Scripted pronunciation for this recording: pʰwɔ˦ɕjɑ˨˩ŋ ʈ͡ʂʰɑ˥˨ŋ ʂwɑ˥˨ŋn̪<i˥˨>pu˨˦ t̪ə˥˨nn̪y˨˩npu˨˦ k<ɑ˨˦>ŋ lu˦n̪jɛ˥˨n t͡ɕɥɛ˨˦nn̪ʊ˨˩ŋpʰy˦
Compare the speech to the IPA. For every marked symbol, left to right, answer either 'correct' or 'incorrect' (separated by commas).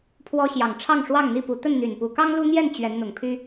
correct, incorrect